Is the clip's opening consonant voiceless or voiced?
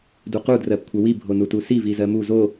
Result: voiced